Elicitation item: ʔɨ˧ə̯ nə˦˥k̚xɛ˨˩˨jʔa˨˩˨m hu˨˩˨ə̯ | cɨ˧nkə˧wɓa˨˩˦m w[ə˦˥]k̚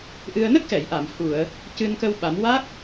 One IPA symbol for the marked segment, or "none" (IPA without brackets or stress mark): a˦˥